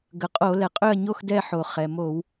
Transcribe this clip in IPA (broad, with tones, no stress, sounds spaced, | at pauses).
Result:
ɡ ə˩ qʼ o˧˩˧ l ɛ˩ qʼ ø˥˨ ɐ̯ ɲ o˥˨ x d ɛ˥˨ ħ o˩ χ ɛ˩ m o˧˩˧ w